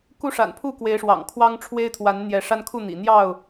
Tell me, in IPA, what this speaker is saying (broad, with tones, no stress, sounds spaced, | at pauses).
k u˦ ʂ a̰˨˩ n pʰ u˥˨ k w e˨˦ ɪ̯ ʂ w ɑ̰˨˩ ŋ kʰ w ɑ˦ ŋ ʈ͡ʂʰ w e˦ ɪ̯ t̪ʰ w a˨˦ n n̪ j ɛ˨˦ ʂ a˦ n kʰ u˥˨ n̪ ḭ˨˩ n̪ j ɑ˥˨ ʊ̯